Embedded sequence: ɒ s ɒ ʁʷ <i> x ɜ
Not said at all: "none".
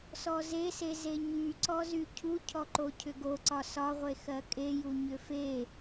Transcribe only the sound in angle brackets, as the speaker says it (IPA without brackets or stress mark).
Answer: e